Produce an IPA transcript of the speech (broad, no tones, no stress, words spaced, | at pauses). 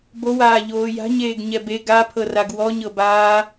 bowaː ʎoːja̤ɲeːɡ ɲɛbe ɡapʰɤraɡ wɔɲɤbaː